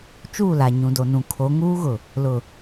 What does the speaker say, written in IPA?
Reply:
t͡ʃ uː˦˨ l a˨ ɲ ũ˨ d o˨ n ũ˨ kʰ o˨˦ ŋ uː˦ ɣ ʊ˨ | l ʊ˨

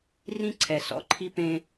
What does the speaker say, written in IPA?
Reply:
r ĩ˦ ǀʰ ɛ˨ s ɔ̰˦ ǃʰ i˦ p ẽ˦

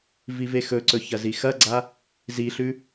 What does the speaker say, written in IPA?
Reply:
v i v e x ɵ ǀ ɵ ç ɐ z i x ɐ ɡ͡ǀ a | z i ɬ ʉ

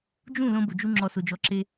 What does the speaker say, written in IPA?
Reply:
d͡ʒ ũ˦˨ l õ˦ b ʊ˨ d͡ʒ u˦ ŋ͡ǁ ɔ˨ s o˨ d͡ʒ ɔ˨˦ ǁ e˦

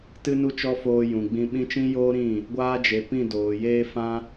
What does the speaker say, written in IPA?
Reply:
t ɨ˧ n u˧ t͡ʃ ɔ˧ f oː˧ j ũ˨ ɡ͡b ĩ˧ ɓ ĩ˦ t͡ʃ ĩ˦ j oː˦ ɾ ĩ˦˨ | ɡʷ aː˧ d͡ʒ e˨ p ĩ˦˨ d oː˨ j eː˦ f ã˦

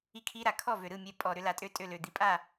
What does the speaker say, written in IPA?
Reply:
i˥˩ kʰ i˦˥ ɾ a˨˩ kʰ ɔ˥˩ v ø˨˩ ɾ ɯ˥˩ mʲ ɛ˨˦ pʼ ɔ˨˩ ɾ ʏ˦˥ l a˨˦ tʼ ø˦˥ tʼ ø˥˩ l ø˨˩ d̪ i˨˩ pʼ a˥˩

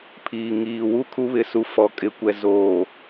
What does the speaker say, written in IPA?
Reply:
pʰ iː˨ ŋ iː˨ w u˦ kʰ u˦ β ɪ˨˦ s u˨˦ f ɔ˨ kʼ ɪ˨ kʷ ɛ˨ z oː˨

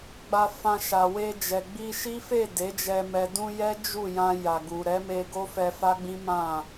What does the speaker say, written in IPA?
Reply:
ɡ͡b a˧ f ã˧ ʃ a˨ w e˧ d͡ʒ ɛ˨ ɡ͡b i˧ ʃ i˦ f e˦˨ d e˨˦ d͡ʒ ɛ˧ m ɛ˨ d ũ˧ j ɛ˦ d͡ʒ u˦˨ j ã˧ j a˨ ɡ u˨ ɾ ɛ˨˦ m e˧ ɡ o˦ f ɛ˧ f a˦ ɡ͡b ĩ˦ m ã˦˨

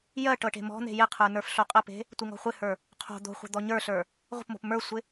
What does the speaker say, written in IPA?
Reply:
j ɜ ʈ ɤ ʈ e̤ m ɔ̤ n̪ e̤ j ɪ qʰ ə˞ n ə˞ f ɬ o qʼ ə p e̤ | tʷ ɪ ŋ ɔ̤ χʷ ɪ h ə˞ | qʰ o̤ d̪ o̤ χʷ ə̤ d̪ ɔ ɲ ə˞ ɬ ə˞ | ʁʷ ə̤ p m o̤ p m ə˞ sʷ ɪ

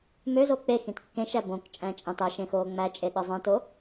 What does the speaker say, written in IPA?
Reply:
m ø z o k͡p e x ĩ t kː ẽ ʃ æ b õ k t͡ʃʼ æ̃ t͡ʃʼ ɑ̃ t ɑ ʃ ẽ x oː ŋ͡m æ t͡ʃʼ e ɗ ɯ zˤ ẽ t o

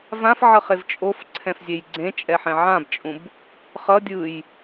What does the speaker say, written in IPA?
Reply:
v ã f ʕ ʌ χ e v t͡ʃʼ o f ǀʰ ɛ̃ f zʲ e j ɡ͡ǀ ẽ t͡ʃʼ ɛ ħ ɛ̃ ʕ ã b t͡ʃʼ ũ b | χ ʌ dʲ ɯ j

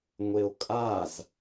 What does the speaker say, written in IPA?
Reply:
ŋʷ e o̯ kʼ a z

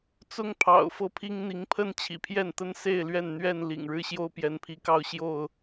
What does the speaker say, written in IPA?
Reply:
t͡s ʊ˦ ŋ pʰ ɑ̰˨˩ ʊ̯ f ɤ˥˨ pʰ i˦ ŋ n̪ i˨˦ ŋ pʰ ə˥˨ n t͡ɕʰ ḭ˨˩ pʰ j ɛ˥˨ n t̪ ə˦ n s e˥˨ ɪ̯ l ɥ ɛ˥˨ n n̪ ɥ ɛ˥˨ n l ḭ˨˩ ŋ ɻ ɻ̩˦ ɕ j o˦ ʊ̯ p j ɛ˨˦ n pʰ i˨˦ k ɑ˦ ʊ̯ ɕ j o˥˨ ʊ̯

